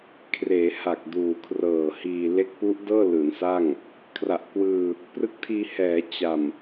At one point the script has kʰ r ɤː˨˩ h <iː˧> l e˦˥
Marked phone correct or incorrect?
correct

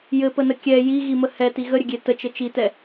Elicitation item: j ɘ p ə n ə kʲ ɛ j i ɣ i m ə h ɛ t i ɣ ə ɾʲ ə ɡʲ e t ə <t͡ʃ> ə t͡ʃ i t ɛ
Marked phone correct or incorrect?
correct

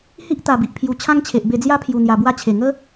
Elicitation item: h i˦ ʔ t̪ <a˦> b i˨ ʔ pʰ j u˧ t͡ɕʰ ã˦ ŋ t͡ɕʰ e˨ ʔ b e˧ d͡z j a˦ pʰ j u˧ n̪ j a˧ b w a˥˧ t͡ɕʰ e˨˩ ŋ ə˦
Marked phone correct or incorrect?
incorrect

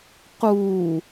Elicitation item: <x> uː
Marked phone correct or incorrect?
incorrect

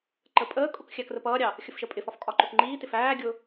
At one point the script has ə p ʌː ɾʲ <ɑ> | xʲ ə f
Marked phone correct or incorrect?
correct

